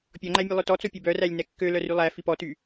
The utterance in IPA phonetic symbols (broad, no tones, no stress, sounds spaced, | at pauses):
pʲ ɔ ŋ͡ǃ æ mʲ ɛ lˠ ɵ t ɔ t͡s o pʲ ɛ b œ r æ lʲ n ɛ kː ø l œ r y lˠ æ f i p ɔ t y